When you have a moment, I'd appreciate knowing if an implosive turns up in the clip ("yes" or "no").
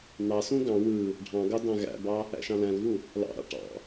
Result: no